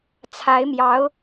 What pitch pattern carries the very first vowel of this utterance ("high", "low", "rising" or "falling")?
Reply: rising